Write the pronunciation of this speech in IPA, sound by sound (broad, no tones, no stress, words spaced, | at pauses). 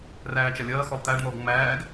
ræːt͡ʃɐlʲɐːxɔlˠ t̪æɖn̪ɔːɡ ŋ͡mæːɡ